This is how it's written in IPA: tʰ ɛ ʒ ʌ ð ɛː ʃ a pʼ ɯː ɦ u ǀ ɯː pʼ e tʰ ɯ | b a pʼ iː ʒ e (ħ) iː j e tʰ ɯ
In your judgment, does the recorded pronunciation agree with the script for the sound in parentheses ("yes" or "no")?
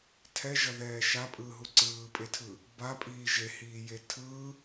no